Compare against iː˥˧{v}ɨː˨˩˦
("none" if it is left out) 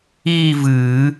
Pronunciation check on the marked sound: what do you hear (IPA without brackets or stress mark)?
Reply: v